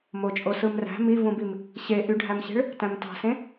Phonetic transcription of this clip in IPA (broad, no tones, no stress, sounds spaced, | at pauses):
m o t͡ʃʼ o s ɯ m r æ̤ m i v ũ b i m | ɕ e ʔ y ɖʱ æ m ɕ e̤ ɭ | t æ̃ m t ɑ̤ s ẽ